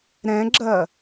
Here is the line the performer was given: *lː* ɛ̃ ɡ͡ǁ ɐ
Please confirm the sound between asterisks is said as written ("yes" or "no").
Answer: no